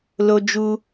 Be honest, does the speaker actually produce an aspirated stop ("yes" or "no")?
no